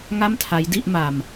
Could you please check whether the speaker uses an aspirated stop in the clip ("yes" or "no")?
yes